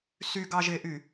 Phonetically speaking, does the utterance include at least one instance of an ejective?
no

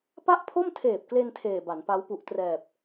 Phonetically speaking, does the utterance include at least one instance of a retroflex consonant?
no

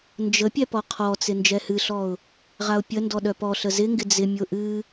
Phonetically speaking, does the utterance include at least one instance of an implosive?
yes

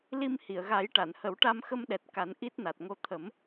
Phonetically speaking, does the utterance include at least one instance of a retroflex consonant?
yes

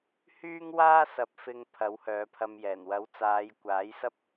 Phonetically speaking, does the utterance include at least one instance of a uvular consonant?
no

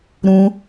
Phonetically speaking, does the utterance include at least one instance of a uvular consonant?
no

